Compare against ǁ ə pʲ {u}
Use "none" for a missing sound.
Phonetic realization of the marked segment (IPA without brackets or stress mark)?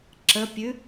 ʉ